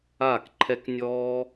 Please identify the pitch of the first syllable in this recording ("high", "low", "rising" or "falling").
falling